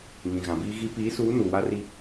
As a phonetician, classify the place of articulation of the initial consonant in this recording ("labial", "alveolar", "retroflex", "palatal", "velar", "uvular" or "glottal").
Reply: velar